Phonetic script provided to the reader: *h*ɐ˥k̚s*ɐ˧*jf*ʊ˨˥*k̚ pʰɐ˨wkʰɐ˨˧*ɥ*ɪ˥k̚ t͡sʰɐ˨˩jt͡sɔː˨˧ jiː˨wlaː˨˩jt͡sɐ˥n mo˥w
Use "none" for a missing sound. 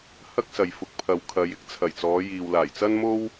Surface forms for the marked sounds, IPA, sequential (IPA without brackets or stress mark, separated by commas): h, ɐ˨, ʊ˨˥, j